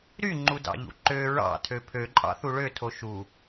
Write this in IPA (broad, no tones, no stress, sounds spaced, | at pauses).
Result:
ɾ y ŋ͡ǃ u d ɑ̰ ʎ ṵ ǃ ø ɹ ɑ̰ tʰ ø pʰ ø ǃʼ ɑ̰ θ u ɭ ø tʰ o ʃ u